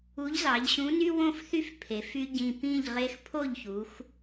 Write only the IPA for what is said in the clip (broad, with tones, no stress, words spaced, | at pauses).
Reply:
u˨˥ʎzɑ˩˧ʎɕũ˨˥ny˦ wõ˥˩fθy˥˩f pʰe˩˧f y˦ɟĩ˧˩ pĩ˥˩ʎʁe˦x pʰo˥˩ʎçu˩˧x